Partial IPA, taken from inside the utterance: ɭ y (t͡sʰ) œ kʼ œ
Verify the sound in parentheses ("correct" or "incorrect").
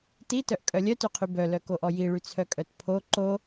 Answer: correct